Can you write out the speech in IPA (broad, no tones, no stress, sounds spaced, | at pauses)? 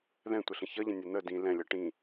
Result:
ð ɛ̃ tʷ ə ɬ ə̃ ç ʌ ʎ ə̃ nʲ ɛ n̪ ə d ĩ l ɛ̃ lʲ ʌ ʈ ĩ